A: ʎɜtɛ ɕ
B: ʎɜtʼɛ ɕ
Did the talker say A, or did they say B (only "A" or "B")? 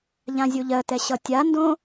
A